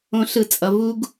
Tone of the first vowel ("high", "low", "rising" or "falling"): high